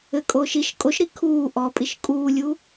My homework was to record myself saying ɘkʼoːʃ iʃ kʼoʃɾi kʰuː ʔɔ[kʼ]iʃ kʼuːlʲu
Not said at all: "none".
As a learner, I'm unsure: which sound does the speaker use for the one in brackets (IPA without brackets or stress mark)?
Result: pʼ